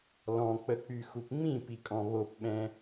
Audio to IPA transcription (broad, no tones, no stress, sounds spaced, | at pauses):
l ɔ̃ k͡p ə k͡p y x u p ŋ͡m ĩ p i kʼ ɔ̃ β o p ɓ ɛ̃